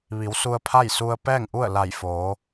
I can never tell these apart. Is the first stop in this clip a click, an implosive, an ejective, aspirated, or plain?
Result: aspirated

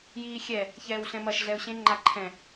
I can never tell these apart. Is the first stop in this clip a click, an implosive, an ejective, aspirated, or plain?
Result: click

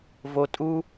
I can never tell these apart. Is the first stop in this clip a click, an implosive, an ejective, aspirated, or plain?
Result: ejective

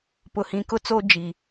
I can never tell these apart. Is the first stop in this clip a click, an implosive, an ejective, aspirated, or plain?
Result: plain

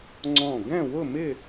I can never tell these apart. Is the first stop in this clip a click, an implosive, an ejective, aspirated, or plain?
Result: click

